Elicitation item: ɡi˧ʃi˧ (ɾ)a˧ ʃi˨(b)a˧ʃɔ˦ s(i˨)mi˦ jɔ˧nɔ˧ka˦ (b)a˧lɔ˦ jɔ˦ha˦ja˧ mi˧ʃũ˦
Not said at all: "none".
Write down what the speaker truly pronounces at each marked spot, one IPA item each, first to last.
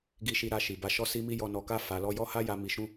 ɾ, b, i˦, f

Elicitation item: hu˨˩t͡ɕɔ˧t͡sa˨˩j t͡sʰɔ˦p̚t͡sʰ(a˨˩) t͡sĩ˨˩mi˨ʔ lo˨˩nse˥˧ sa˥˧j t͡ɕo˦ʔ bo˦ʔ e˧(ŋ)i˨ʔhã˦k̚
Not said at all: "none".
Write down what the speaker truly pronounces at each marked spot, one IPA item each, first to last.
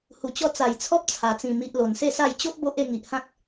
a˨˩, ŋ

